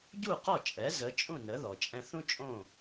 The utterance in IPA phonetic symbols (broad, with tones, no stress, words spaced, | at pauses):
ɟu˥˩qɔ˥˩t͡ʃʼɛ˩˥ zə˩˥ t͡ʃʼũ˥˩nə˩˥ðɔ˩ t͡ʃʼɛ̃˧θũ˥t͡ʃʼõ˥˩